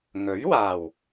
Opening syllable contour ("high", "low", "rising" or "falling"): rising